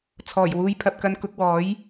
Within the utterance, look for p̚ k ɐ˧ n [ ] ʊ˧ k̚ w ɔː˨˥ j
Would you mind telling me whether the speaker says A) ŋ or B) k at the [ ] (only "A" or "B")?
B